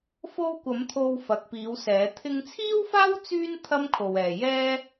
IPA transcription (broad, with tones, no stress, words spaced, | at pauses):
fo˧wkʷɐ˨˧m t̪ʰo˧wfɐ˨k̚piː˨˧wsɛː˨˧ t̪ʰɪ˧ŋt͡sʰiː˥wfaː˥w t͡syː˥n t̪ʰɐ˥mkʰo˨wɛː˨ jɛː˥